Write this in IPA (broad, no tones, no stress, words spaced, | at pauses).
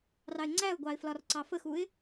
rɑɪ̯ŋ͡ǀæʊ̯ɡʷɑɪ̯ flɒrǀɑfəxuɪ̯